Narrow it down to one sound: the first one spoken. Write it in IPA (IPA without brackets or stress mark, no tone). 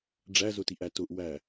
ɖ͡ʐ